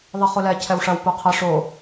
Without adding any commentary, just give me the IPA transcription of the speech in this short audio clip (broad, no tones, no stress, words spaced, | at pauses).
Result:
ðˤiχulɛ cʰɛwʂɐw puqʰɐ ʂo